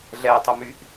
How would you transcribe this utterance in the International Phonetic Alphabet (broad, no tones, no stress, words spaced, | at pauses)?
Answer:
ɮɛtˤʊmyʔ